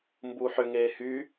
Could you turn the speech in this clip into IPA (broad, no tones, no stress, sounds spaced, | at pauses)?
m b u ħ ʏ ŋ eː h y